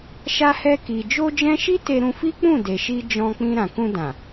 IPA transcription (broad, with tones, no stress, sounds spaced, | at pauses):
ʃ a˧ h ɛ˧ k i˨ d͡ʒ o˧ d͡ʒ ɛ̃˧ ʃ i˦ t e˧ ɾ ũ˧ f i˦ k͡p ũ˦˨ d e˨ ʃ i˧ d͡ʒ ɔ̃˧ k͡p ĩ˧ ɾ ã˨ k ũ˧ d ã˨